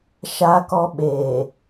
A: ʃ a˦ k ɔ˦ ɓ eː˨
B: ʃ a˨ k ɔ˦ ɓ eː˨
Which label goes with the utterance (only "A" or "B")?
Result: A